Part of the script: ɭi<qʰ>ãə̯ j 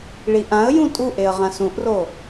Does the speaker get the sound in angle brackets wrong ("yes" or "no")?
yes